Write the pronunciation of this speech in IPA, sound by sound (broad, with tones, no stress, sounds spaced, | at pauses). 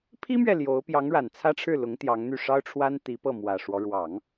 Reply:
pʰ i˥ m ɥ ɛ˨ l j o˧˥ ʊ̯ p j ɑ˧˥ ŋ ɻ a˨˩ n t͡sʰ ä˥ ʈ͡ʂʰ ɻ̩˥˩ l ʊ˧˥ ŋ t̪ j ɑ˧˥ ŋ n̪ y˥˩ ʂ ɑ˥ ʊ̯ ʈ͡ʂʰ w a˥ n t̪ i˧˥ p ɤ˥˩ m w ä˨˩ ʂ w ɔ˦ ɻ w ɑ˨˩˦ ŋ